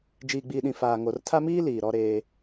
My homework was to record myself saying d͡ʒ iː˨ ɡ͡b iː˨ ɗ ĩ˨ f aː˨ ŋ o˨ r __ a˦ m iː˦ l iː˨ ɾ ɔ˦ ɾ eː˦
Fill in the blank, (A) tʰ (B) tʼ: A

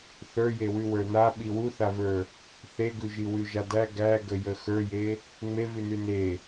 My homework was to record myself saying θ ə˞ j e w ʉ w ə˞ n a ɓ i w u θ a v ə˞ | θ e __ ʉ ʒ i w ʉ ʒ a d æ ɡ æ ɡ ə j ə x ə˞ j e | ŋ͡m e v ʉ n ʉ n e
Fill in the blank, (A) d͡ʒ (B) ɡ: B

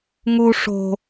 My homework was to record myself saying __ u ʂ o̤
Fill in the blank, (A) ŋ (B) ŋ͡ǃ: A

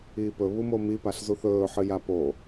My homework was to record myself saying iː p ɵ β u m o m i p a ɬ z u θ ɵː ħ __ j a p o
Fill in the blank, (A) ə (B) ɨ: B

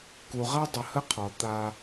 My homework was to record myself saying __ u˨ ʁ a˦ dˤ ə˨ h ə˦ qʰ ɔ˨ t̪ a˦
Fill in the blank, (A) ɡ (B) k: B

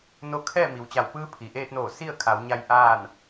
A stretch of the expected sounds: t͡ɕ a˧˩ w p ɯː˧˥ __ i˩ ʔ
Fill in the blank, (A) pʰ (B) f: A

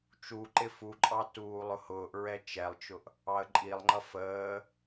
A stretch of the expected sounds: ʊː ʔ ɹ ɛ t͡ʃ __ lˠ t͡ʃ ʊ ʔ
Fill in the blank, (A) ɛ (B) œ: A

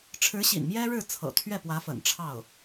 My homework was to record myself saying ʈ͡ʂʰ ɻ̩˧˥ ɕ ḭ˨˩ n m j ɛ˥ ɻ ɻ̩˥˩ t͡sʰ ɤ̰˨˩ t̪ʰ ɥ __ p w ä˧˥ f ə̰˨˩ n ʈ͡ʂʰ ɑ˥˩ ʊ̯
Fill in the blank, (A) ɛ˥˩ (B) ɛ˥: A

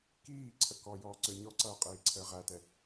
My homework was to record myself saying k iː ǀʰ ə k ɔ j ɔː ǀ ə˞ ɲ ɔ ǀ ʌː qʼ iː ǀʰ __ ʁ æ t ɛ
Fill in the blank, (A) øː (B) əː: B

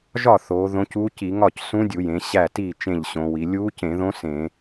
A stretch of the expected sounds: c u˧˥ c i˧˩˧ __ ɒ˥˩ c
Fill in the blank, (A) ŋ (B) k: A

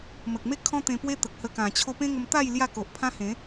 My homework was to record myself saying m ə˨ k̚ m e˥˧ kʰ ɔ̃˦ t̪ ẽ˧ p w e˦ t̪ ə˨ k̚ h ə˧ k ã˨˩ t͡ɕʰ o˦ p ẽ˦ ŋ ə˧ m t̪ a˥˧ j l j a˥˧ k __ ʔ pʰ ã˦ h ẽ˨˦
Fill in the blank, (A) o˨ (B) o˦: A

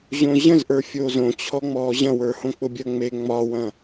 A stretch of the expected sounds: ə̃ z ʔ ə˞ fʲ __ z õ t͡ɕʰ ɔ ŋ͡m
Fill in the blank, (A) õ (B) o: B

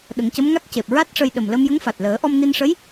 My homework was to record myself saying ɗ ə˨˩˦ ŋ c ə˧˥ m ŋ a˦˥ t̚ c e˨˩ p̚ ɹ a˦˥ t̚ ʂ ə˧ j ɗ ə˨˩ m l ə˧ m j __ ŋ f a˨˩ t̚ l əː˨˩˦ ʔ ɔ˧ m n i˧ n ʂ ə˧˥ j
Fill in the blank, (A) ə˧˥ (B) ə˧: A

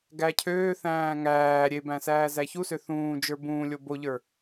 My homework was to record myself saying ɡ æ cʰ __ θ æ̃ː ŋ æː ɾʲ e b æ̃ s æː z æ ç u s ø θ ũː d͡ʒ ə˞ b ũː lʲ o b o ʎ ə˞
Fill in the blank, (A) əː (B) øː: B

